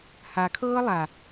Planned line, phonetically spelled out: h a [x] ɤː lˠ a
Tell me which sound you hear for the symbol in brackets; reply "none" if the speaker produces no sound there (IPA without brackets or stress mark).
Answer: kʰ